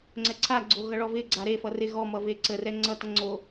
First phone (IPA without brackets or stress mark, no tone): ŋ͡ǀ